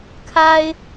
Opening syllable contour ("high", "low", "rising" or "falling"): high